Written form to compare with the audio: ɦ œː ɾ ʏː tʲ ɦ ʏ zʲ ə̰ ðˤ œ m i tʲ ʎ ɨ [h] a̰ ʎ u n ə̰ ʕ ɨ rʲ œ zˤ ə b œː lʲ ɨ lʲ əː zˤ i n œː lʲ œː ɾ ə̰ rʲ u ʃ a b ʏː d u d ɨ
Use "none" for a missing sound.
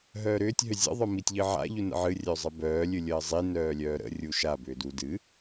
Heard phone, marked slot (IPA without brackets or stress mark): ʕ